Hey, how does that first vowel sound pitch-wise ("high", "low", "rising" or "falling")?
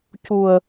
low